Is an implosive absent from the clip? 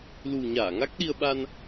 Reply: no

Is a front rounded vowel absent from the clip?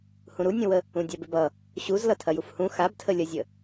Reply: yes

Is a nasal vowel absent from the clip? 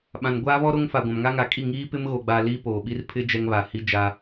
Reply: no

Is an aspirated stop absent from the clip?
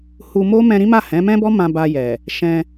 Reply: yes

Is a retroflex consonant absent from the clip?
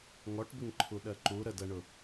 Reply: no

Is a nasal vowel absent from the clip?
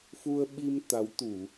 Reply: yes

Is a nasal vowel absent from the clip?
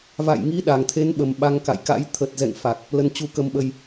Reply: yes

